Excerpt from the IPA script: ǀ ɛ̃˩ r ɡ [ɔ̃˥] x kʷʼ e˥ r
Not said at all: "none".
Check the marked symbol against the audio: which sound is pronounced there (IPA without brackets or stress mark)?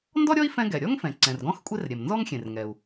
ɔ̃˥